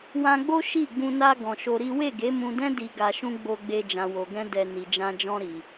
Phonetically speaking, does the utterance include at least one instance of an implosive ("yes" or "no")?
no